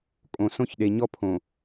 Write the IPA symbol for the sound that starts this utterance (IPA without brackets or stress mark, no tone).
kʼ